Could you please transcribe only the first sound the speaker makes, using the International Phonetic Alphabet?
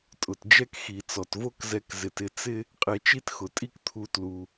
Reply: tʼ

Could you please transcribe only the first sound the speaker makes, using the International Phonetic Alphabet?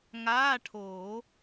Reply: ŋ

